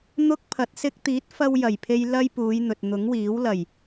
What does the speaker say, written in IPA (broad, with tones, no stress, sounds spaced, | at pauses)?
n̪ ʊ˥ k̚ pʰ ɐ˨˥ t̚ s ɪ˧ k̚ t̪ iː˨˥ t̚ f ɐ˧ w j ɐ˨˩ j pʰ e˧ j l ɐ˥ j p uː˨˧ j n̪ ɵ˨ t̚ n̪ ʊ˨˥ ŋ w iː˨˥ w l ɐ˨˩ j